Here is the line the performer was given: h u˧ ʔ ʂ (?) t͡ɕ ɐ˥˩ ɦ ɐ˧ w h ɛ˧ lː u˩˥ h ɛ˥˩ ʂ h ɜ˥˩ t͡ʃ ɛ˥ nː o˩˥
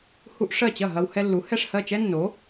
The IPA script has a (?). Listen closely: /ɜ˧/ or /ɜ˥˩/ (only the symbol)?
ɜ˥˩